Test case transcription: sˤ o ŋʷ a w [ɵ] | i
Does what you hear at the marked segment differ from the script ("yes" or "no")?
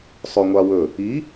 no